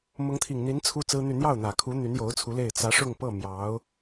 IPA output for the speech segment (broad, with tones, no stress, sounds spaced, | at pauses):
m ʊ˧˥ ŋ t̪ʰ i˨˩ ŋ n̪ i˧˥ n t͡sʰ u˥ t͡s ɹ̩˥ n̪ y˥˧ n̪ j ɑ˥˩ ʊ̯ n̪ ä˨˩ kʰ u˧˥ n̪ y˧˥ n j o˧˥ ʊ̯ t͡sʰ u˧˥ l e˥˩ ɪ̯ t͡s ä˧˥ ʂ ʊ˥˧ ŋ p ɤ˥˩ m j ɑ˧˥ ʊ̯